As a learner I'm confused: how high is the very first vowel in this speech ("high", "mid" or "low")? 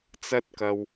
low